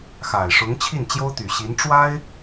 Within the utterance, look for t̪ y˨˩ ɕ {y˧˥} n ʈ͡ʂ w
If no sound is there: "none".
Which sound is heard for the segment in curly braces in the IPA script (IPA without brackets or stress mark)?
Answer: i˧˥